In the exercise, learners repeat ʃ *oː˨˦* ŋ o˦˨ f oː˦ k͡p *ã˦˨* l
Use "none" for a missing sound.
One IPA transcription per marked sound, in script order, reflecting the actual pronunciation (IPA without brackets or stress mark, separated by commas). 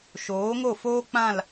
oː˨˦, ã˦˨